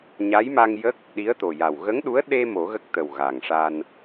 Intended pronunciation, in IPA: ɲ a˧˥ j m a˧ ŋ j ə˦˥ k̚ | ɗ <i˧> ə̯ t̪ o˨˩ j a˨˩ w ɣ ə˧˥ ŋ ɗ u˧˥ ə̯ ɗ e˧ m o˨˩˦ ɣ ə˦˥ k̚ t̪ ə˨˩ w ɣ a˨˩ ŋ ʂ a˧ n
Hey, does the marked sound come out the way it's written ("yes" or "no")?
no